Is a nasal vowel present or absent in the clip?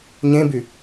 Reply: present